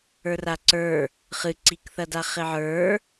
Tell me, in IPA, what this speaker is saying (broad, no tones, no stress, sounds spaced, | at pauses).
ə˞ r a ǀ ə˞ | χ ɨ ǀ i k θ ɐ d a χ ɪ ʕ ə˞